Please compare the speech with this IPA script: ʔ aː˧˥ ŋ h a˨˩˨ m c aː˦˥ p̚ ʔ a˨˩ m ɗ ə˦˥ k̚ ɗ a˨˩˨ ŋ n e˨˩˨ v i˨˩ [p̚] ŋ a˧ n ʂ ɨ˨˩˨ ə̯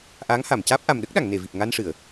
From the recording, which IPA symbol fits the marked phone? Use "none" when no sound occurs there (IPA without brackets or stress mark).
p̚